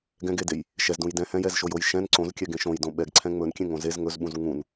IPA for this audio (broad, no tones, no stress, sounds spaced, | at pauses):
ɡ ɛ̃ ɡ e d e j | ʃ ɛ z d ũ j d ɛ̃ h ɛ̃ j ɛ z ʃ o j o j ʃ ɛ̃ n ǀ õ z kʲ ɛ ɡ ẽ ʃ õ j d õ ɓ ɛ ɡ ǀʰ ɛ̃ ŋ͡m ɵ n kʲ ẽ ŋ õ z e z ŋ ɵ z ɓ ũ z ŋ ũ n